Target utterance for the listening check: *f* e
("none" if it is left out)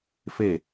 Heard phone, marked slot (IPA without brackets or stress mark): f